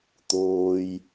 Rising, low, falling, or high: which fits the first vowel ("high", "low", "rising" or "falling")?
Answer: low